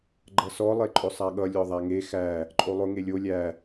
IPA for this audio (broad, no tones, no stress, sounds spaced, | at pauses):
ɡ͡ǃ ʌ s ɔ lˠ e ǃʼ ʊ sˤ a ɠ ʌ lʲ ɔ ðˤ a ŋ e x æ | ǃʼ o lˠ ʊ ŋ e lʲ o lʲ æ